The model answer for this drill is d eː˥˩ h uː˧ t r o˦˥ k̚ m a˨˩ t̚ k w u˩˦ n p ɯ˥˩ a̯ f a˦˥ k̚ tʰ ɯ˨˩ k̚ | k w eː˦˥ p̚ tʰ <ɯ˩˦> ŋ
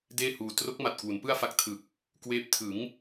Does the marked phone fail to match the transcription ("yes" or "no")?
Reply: no